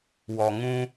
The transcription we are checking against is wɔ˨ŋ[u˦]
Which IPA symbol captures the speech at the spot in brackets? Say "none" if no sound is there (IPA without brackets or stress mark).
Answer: ũ˦